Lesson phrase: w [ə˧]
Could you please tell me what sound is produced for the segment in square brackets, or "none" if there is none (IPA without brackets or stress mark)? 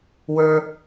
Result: ə˞˧